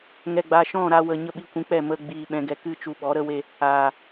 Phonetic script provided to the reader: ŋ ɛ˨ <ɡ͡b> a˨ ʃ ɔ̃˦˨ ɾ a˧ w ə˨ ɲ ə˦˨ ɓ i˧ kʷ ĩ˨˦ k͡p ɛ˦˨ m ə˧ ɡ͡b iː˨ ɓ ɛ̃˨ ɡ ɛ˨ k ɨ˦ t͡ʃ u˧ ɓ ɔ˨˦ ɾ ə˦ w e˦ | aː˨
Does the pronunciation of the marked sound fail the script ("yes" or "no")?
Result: no